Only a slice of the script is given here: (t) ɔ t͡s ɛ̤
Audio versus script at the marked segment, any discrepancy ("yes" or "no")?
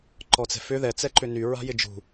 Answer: yes